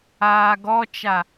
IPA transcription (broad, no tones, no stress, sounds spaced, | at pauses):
aː ɡ ɔ t͡ʃ a